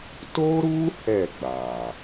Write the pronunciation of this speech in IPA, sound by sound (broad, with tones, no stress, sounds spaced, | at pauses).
t o˦ ɾ u˦ h ɛ˦˨ ɡ͡b a˨